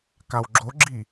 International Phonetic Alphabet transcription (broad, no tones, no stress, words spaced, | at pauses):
kawɡ͡ǁoɡ͡ǁi